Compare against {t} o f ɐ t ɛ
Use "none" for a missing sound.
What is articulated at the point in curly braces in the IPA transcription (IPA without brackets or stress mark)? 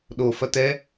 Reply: ɗ